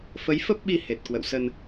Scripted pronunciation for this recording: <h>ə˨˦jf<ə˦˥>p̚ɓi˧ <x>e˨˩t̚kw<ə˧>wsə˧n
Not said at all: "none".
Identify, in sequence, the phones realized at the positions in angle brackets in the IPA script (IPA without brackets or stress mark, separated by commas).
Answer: f, ə˦˥, h, ə̰˧˨